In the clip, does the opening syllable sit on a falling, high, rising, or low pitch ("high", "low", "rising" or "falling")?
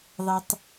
high